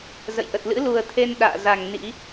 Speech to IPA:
zə̰˧˨jʔə˨˩t̚ lɨ̰˧˥lu˨˩ə̯t̪ʰe˧n ɗa̰ː˧˨ za˨˩ŋ nḭ˧˥

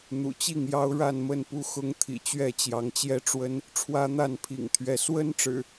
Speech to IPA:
n̪ṵ˨˩t͡ɕi˥˨ŋjɑ˦ʊ̯ ɻa˥˨nmə˥˨npu˦ xʊ˦ŋt̪ʰḭ˨˩t͡ɕɥɛ˥˨ t͡ɕjɑ˨˦ŋt͡ɕjɛ˦ʈ͡ʂwə˦n | ʈ͡ʂʰwä˦n̪a˥˨npʰḭ˨˩ŋt̪ʰɥɛ˨˦ swə˦nʈ͡ʂɻ̩˨˩

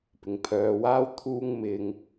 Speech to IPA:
pɪ˨ŋpʰœː˨˧waː˥wt̪ʰuː˥ŋ mɪ˧ŋ

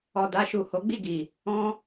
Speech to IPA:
ɔ˨da˧ʃu˨ ho˨˦ɡ͡bi˦˨ɡi˨ | ɔ̃˧

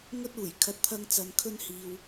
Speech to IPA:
ŋɵ˥t̚uː˨˩jkʰɐ˧t̚ t̪ʰɐ˧ŋt͡sɐ˨n kʰɵ˥nhiː˨w

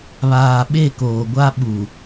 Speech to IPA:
βaː˨ɓe˦˨koː˨ɡʷa˦ ɓu˨

